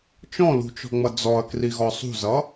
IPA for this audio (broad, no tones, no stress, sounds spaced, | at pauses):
t͡ʃ ɔ̃ l ṳ t͡ʃ ɔ̤ ŋ͡m ʌ d͡z ɔ ɐ̯ k r i ɣ ɔ sˤ ṳ z ʌ